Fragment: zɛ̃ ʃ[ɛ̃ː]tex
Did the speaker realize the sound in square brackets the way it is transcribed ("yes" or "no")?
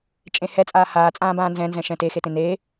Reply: no